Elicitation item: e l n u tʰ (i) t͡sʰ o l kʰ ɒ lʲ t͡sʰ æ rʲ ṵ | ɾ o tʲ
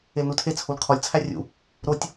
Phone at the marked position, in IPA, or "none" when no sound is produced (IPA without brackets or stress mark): e